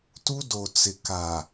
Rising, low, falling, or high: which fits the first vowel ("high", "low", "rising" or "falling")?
high